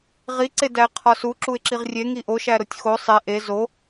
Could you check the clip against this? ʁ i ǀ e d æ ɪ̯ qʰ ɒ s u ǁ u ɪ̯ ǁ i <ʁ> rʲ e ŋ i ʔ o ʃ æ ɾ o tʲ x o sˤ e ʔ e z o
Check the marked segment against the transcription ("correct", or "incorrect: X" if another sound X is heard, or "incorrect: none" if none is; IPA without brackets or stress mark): correct